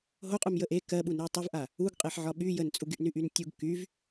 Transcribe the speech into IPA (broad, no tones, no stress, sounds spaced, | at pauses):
ɦ o qʼ u m j ə ʔ e k ɜ ɓ u n u j tˤ u v ʔ a | u ɡ qʼ e ħ ʕ ɒ ɓ y j ə n t͡sʼ u ɡ y ʔ n y ʔ y n tʲ u ɡ k y v